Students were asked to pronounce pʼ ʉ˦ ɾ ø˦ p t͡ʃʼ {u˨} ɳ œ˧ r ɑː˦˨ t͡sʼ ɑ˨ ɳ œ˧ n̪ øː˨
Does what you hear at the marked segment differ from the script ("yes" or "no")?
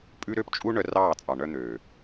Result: yes